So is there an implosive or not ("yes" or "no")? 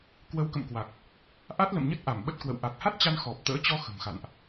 yes